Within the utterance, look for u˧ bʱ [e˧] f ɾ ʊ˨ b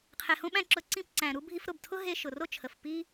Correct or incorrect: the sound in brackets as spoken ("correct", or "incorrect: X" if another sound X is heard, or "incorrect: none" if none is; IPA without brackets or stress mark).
incorrect: i˧